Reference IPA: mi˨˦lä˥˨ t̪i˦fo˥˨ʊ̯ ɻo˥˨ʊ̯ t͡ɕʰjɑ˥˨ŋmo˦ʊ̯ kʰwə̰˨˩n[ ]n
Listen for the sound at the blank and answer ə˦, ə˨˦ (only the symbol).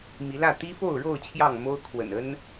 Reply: ə˦